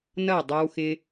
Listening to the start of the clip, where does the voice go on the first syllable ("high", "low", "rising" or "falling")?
falling